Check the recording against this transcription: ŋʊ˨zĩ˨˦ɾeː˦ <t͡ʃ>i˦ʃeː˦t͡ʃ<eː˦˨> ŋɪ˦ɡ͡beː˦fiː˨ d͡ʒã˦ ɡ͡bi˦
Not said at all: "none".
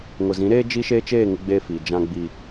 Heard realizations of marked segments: d͡ʒ, eː˦˨

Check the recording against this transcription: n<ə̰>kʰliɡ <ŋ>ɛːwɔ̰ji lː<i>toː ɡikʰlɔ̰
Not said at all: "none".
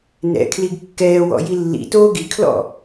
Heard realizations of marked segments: ɛ̰, kː, ḭ

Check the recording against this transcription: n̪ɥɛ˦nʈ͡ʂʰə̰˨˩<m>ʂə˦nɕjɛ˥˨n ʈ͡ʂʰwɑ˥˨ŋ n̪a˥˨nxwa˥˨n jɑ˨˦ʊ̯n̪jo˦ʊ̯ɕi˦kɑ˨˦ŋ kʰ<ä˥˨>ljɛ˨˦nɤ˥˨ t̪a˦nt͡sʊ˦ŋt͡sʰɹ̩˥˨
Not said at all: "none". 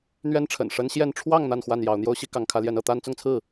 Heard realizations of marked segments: n, ä˨˦

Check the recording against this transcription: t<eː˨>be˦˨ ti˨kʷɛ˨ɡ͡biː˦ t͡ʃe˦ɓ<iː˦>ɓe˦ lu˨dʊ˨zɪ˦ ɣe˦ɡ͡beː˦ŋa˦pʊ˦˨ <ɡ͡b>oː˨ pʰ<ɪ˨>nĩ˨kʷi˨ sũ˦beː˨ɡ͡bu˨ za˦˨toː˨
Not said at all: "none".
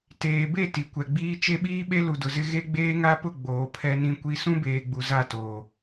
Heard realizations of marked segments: eː˨, iː˦, ɡ͡b, ɛ˨

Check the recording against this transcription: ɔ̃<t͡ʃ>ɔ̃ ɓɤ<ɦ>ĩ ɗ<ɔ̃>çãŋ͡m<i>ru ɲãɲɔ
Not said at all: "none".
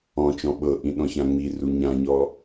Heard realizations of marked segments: t͡ʃ, ʔ, ɔ̃, i

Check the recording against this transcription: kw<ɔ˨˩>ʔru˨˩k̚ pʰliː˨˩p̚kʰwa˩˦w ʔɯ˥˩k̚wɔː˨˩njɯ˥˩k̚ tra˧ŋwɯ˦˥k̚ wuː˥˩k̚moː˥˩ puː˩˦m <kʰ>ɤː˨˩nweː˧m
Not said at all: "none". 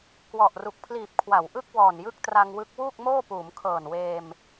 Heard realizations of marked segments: ɔ˨˩, kʰ

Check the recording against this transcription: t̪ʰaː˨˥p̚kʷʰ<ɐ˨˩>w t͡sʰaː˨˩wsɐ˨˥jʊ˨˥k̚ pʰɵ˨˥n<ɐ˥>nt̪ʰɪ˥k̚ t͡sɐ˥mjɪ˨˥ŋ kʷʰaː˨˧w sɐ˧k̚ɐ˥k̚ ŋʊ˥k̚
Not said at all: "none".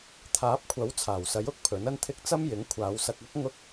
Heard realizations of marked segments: ɐ˨˥, ɐ˥

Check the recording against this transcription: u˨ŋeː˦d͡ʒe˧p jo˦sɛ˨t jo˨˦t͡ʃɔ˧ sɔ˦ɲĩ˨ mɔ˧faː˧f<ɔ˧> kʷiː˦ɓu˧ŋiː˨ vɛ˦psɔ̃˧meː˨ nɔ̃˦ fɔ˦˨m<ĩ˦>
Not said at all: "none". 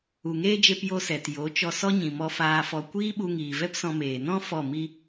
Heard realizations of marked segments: ɔ˧, i˦

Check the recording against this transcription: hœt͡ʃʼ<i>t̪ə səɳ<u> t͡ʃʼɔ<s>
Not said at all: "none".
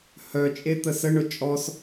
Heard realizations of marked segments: e, ʊ, s

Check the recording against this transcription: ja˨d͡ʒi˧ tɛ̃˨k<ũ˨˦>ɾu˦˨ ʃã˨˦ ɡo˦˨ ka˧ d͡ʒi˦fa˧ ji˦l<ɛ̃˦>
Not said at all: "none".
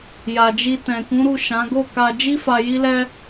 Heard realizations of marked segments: ũ˨˦, ɛ˦

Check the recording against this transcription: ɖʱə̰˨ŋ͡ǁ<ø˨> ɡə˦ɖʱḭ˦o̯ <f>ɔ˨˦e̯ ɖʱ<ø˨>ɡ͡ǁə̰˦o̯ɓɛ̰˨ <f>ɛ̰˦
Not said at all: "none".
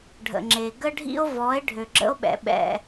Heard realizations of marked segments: e˨, v, ø˨, ɓ

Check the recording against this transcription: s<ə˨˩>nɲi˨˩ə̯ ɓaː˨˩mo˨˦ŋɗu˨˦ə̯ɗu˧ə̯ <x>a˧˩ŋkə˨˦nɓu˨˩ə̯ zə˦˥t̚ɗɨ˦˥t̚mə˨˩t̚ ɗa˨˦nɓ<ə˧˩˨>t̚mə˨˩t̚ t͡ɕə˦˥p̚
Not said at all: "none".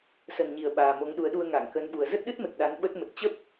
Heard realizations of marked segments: ə˨˩, ŋ, ə˦˥

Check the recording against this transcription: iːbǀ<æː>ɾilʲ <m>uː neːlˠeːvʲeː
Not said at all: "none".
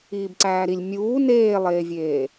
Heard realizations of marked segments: æː, mʲ

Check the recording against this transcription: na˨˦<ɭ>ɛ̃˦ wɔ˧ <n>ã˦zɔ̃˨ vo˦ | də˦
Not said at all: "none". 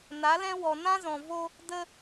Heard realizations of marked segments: l, n

